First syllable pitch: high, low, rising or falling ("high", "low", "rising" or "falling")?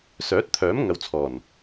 rising